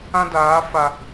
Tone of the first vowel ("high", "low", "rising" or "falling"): high